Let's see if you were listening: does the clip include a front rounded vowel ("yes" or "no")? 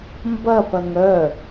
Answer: yes